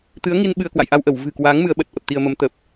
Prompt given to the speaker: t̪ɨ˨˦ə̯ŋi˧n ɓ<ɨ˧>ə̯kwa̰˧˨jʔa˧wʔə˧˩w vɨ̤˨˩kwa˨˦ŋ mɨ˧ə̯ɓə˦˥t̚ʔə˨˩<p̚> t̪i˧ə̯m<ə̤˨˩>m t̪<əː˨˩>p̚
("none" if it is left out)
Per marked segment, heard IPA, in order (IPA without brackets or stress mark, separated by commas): ɨ˧, p̚, ə˨˦, ə˨˩